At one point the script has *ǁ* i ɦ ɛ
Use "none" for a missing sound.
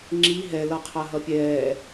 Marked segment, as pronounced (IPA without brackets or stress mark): ŋ͡ǁ